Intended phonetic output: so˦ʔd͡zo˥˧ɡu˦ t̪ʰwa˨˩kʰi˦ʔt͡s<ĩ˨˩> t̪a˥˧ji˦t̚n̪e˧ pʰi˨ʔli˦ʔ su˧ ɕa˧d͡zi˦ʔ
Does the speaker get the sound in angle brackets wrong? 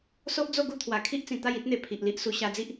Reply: no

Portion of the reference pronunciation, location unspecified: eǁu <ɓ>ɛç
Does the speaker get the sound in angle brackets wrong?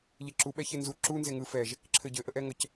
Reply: no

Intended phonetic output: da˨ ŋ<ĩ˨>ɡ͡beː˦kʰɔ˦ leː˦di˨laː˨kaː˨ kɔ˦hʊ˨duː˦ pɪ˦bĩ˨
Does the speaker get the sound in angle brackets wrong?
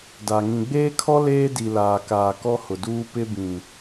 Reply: no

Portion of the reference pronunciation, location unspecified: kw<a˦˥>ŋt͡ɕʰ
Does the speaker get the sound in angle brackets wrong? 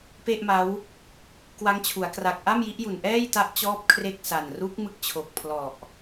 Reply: no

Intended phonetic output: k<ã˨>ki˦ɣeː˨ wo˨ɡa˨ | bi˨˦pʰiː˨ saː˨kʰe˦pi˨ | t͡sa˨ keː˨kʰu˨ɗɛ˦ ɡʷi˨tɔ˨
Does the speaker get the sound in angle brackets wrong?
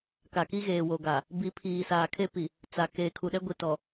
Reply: yes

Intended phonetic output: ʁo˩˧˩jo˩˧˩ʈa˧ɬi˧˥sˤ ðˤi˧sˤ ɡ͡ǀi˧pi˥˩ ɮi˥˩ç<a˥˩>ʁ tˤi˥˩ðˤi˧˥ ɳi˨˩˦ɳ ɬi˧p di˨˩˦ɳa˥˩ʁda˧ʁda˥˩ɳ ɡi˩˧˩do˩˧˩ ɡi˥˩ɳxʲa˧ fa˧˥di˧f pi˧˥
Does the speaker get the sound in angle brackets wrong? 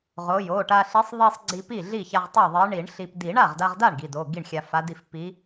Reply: yes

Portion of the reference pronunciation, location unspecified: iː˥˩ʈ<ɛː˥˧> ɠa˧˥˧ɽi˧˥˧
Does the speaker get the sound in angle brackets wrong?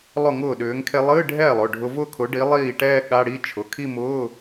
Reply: no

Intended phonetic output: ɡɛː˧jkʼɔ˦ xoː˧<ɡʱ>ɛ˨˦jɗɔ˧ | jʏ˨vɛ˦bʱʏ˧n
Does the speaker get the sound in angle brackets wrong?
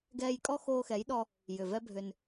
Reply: yes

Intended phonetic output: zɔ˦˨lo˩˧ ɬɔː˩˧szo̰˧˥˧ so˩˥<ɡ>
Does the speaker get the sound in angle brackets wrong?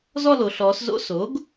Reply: no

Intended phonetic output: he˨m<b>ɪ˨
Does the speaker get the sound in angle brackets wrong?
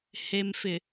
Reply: yes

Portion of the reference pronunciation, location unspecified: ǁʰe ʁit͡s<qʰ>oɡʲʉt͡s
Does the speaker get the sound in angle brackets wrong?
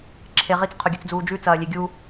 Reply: no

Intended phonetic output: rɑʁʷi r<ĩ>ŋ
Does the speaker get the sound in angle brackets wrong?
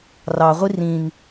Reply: no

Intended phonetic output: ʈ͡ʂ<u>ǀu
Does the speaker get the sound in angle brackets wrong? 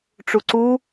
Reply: no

